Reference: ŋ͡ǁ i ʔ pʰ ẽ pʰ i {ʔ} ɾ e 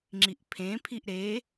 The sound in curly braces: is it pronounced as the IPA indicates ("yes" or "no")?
yes